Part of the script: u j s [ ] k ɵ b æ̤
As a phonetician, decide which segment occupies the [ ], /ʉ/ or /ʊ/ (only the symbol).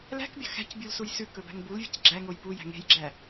ʉ